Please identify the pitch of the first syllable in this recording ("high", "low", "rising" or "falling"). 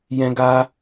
high